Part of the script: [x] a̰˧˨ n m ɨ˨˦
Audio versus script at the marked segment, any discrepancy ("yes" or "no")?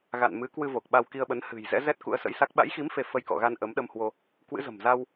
yes